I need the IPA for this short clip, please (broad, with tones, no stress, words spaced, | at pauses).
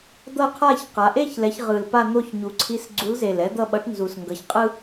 d̪ʌ˥˧qʰa˥˧çqa˩˧ ʔe˥˧çlɛ˩˧ç ʁɯ˨˩lpa˥˧ n̪o˥˧çɲu˩˧ǀʰi˧˥s ɡ͡ǀu˧˥lze˨˩l ɛ˧˥d̪ʌ˥˧ɓʌ˧˥ʈnzu˨˩s ŋɡʌ˩˧çqʼɯ˥